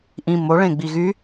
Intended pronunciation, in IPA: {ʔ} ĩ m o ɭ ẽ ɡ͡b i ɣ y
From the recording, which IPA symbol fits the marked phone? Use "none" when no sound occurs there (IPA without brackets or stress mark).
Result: ʔ